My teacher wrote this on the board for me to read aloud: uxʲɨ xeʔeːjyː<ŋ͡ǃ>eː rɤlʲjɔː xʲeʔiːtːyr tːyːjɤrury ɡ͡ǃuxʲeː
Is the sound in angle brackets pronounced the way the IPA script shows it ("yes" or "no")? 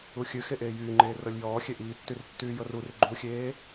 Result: yes